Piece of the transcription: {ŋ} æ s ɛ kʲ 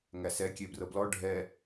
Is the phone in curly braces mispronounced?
no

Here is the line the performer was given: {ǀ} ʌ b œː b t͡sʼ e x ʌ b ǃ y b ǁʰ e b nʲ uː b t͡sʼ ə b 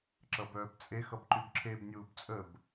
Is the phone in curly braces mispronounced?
yes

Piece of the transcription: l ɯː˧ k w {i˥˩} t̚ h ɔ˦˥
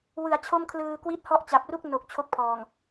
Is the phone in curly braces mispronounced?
yes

